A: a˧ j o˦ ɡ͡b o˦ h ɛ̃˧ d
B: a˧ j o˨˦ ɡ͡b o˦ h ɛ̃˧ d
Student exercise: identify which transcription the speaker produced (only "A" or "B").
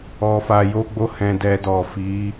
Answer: A